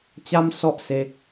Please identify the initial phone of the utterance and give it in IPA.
t͡ɕ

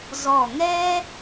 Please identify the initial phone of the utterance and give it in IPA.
z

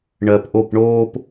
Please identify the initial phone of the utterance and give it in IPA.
ɳ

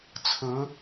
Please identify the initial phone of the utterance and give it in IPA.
t͡sʰ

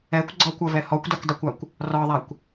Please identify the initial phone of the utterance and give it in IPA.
ɛ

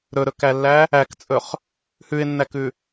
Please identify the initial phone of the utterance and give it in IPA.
ɾ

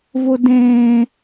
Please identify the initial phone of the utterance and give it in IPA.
v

